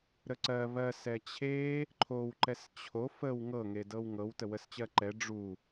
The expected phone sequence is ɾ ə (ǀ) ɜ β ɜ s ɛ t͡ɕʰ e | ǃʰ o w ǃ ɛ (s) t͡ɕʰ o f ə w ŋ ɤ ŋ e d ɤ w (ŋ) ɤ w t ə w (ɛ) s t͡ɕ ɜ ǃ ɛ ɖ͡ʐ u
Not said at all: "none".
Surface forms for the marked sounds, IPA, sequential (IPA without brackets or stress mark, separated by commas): ǀ, s, ŋ, ə